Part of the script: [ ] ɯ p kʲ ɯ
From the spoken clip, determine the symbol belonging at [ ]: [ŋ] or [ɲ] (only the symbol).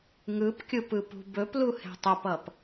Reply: ŋ